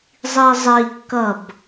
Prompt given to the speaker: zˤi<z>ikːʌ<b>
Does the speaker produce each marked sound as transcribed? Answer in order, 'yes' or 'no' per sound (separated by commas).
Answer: no, yes